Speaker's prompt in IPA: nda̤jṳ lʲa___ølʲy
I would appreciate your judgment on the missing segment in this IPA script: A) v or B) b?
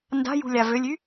A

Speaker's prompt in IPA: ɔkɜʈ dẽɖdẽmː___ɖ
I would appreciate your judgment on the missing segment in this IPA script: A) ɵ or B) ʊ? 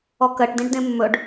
A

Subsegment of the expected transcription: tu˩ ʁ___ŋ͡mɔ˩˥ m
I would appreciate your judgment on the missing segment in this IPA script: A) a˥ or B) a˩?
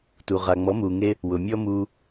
B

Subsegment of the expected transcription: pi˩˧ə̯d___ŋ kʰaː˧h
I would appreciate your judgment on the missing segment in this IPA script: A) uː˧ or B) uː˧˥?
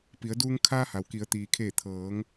A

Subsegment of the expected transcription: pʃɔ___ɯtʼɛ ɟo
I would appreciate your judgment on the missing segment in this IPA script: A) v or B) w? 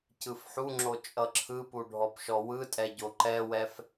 B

